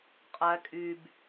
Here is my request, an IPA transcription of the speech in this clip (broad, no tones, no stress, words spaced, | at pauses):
qʼæ kʼyb